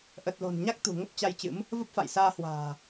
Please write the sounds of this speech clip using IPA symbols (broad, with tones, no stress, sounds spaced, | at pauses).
ʔ ə˨˩ t̚ l o̤˨˩ n ɲ a˦˥ k̚ t̪ ṳ˨˩ ŋ ə˦˥ p̚ t͡ɕ a˧ j t͡ɕ ɨ̰˧˥ m | v ə˦˥ p̚ f a̰˧˨ j s aː˧ h w a̤ː˨˩